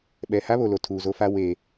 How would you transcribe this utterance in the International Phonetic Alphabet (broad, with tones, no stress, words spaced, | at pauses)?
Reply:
ɓɛ˨ ha˦βo˨lo˨ tʰuː˨zo˦fa˦ we˨